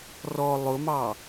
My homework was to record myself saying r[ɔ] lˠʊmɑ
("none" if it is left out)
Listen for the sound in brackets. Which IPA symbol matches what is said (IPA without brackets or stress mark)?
ɔ